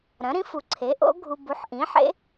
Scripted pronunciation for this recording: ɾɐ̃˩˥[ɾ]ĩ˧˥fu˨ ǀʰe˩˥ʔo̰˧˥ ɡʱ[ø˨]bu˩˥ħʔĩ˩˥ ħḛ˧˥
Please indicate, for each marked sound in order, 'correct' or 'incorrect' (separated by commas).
correct, incorrect